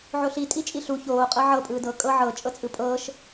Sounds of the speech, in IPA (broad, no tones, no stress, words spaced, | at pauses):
ʕoɬi tʼit͡ʃʼiɬu çoːqʼɤ ʕɤpʼɯː dɤ kʼɤʕɤ t͡ʃʼɤt͡sʼɯpʼɤːʃ